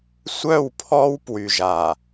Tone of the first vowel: falling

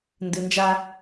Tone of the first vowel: low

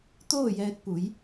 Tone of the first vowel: falling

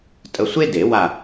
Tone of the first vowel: low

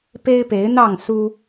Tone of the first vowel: high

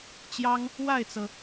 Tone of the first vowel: high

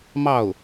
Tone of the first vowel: falling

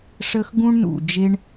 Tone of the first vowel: high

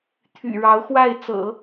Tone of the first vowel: low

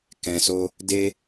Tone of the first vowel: low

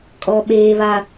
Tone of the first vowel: high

